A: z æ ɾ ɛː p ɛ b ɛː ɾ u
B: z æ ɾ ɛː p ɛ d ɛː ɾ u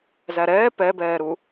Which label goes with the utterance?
A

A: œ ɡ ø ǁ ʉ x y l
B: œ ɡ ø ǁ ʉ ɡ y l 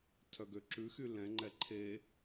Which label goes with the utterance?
A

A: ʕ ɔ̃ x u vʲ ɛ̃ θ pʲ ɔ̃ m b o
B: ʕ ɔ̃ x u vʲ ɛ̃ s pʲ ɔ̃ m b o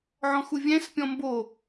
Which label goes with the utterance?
B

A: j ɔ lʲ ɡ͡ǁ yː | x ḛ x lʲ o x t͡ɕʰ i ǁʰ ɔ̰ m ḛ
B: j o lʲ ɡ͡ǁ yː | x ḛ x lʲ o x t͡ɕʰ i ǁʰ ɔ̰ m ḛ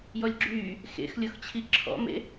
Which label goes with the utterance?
A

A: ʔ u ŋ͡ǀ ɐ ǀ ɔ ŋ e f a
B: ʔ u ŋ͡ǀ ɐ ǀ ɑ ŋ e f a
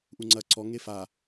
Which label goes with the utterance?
A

